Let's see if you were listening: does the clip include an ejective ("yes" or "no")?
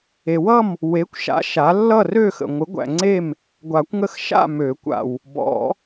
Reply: no